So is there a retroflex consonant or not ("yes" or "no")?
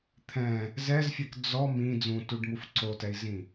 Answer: yes